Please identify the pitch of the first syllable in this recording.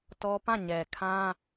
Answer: high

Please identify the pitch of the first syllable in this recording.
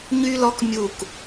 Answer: high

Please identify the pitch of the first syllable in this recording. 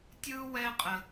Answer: high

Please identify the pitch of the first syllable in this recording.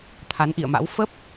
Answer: rising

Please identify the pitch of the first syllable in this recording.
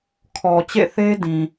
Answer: low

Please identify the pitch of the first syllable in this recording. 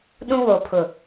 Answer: high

